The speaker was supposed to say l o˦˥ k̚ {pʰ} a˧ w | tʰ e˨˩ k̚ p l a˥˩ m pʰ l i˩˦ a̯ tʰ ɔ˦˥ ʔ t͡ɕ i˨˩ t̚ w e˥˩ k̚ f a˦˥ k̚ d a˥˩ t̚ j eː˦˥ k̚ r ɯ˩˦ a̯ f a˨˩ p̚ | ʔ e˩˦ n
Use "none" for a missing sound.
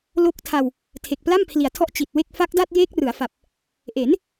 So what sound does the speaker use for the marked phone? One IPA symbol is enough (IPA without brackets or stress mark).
tʰ